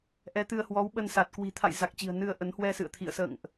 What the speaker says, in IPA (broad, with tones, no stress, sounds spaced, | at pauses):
ʔ ɛ˨˦ t̪ ɨ˧ ə̯ h w ɔ˨˦ w ɓ ə˧ n s a˨˩ t̚ k w i̤˨˩ t̪ʰ a̰˧˨ j z a˨˩ k̚ t͡ɕ i̤˨˩ ə̯ n ɨ˧ ə̯ ʔ ə˨˦ n h w ɛ˧ s ɨ̰˧˨ ə̯ t̪ʰ ḭ˧˨ ə̯ s ə̰ː˧˨ ŋ ʔ